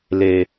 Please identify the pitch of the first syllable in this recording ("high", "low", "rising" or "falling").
low